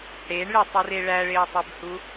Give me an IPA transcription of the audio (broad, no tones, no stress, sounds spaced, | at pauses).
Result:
ɽ e ɳ ɭ e tˤ u r e ɭ æ ɭ e o̯ tˤ e b h u